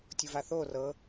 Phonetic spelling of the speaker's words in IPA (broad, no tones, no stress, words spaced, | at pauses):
tʲuvaθo rɤ